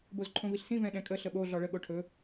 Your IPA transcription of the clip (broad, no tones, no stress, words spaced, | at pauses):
bozǃʰõviɬsĩ vɛ̃ɗɛ̃kʼə ɬəɓo ɮɔɭə ɠoʈʰɵ